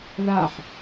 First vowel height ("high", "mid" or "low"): low